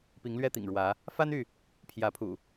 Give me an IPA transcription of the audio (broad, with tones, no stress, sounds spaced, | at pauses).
p i˨˦ ŋ l ɥ ɛ˦ t̪ ḭ˨˩ ŋ ɻ w ä˨˦ | f a˦ n y˥˨ | pʰ j ä˨˦ pʰ ṵ˨˩